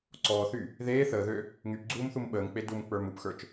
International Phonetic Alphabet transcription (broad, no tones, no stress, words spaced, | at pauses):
ǀɔːθy | ðeː θəːðø | ŋypɡ͡ǀuːmθum ɓəːŋk͡pe dumk͡pə˞m upxə˞t͡ʃ